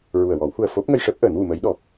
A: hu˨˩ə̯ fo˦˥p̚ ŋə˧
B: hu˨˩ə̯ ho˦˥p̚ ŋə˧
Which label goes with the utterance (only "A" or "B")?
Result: A